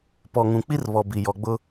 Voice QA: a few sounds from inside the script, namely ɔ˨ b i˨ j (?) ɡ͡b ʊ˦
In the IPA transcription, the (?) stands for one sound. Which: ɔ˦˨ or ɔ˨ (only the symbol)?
ɔ˨